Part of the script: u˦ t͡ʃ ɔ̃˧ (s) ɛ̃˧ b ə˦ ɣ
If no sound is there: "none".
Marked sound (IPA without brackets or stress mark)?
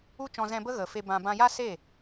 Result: z